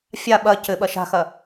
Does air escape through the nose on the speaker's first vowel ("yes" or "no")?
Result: no